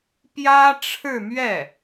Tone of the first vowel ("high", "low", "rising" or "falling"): high